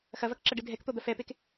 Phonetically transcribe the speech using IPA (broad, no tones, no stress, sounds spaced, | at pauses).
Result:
x ɐ v ɐ k ǁ ɐ ɖ ɨ dʱ ɛ k t̪ o d̪ ɐ f ɛ p e k